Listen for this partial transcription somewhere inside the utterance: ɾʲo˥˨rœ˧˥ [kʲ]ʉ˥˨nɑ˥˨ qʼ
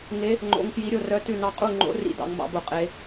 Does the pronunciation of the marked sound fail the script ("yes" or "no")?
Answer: yes